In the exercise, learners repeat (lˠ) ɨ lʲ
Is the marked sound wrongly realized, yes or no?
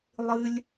no